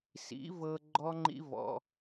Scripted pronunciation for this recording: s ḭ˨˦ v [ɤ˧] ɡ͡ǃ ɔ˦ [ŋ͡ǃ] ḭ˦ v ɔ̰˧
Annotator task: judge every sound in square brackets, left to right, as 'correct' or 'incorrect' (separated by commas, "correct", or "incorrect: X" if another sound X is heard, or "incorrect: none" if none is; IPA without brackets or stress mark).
correct, correct